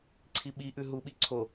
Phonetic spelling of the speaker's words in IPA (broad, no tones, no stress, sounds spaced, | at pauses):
ǀʰ i ɓ i ʔ ʉ ɦ u ɓ i ǀʰ o